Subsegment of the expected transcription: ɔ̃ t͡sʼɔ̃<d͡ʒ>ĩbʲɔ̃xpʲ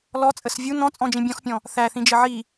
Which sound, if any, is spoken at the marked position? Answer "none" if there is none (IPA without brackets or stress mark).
d͡ʒ